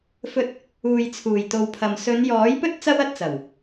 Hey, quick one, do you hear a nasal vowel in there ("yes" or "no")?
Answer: no